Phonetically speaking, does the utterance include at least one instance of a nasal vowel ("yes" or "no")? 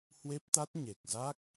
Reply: no